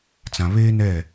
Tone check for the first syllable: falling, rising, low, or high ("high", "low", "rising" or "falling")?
low